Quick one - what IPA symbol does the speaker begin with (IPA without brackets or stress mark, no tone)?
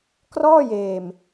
k